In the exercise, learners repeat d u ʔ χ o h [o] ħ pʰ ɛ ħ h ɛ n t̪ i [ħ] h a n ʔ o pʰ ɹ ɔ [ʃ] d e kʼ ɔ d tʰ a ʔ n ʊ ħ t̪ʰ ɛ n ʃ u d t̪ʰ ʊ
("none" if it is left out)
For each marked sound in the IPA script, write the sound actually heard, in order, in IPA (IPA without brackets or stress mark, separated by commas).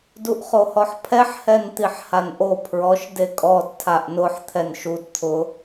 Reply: ɔ, ħ, ʃ